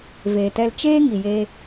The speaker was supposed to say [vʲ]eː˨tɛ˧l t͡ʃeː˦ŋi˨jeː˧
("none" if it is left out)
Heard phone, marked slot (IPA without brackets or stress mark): v